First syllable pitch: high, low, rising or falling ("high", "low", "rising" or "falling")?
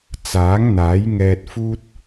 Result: rising